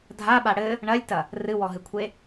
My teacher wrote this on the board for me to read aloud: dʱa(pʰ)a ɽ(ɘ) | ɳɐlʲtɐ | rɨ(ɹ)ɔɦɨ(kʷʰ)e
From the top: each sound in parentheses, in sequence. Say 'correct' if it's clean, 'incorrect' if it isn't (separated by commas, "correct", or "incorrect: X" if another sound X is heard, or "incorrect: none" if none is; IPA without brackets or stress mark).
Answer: incorrect: ɓ, correct, incorrect: w, correct